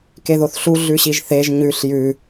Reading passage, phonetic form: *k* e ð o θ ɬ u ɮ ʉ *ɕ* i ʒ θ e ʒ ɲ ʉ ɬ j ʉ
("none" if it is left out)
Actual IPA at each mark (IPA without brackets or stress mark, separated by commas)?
k, ɕ